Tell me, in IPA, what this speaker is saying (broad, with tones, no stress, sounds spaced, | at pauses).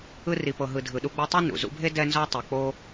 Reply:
ɯ˦ r i˨ p ɤ˨ ɦ ɯ˨ dʱ ɯ˨ ɗ u˦ ɡ͡b ɤ˥ tˤ ɛ˥ n ṵ˩ z ṵ˦ bʱ e˥ d ɛ˥ n z ɔ˥ tˤ o˨ k͡p o˥